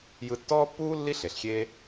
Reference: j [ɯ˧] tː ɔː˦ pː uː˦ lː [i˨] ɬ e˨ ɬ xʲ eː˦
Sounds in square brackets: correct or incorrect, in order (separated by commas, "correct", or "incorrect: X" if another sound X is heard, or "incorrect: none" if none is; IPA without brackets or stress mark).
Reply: correct, incorrect: i˦